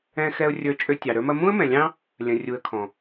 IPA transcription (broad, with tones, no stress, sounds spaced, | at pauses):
ɛ̃˧ x ɛ˧ ʊ̯ rʲ ə˞˧ t͡ʃʼ ø˧ tʲ ɑ˨ ɾ ə˞˧ m ɐ˧ m ũ˦ ə̯ m ɛ̃˨ lʲ ɑ̃˦ | lʲ ɐ̃˨ rʲ u˨ ə̯ kʰ ɔ̃˨